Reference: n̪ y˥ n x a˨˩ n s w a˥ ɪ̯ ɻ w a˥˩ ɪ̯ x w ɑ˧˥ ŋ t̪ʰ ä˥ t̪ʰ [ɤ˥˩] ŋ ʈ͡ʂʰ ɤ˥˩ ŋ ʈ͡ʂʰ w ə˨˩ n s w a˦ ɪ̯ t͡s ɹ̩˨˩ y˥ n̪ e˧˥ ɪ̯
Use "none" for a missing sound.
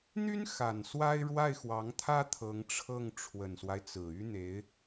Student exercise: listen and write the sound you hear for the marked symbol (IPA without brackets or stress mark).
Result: ɤ˧˥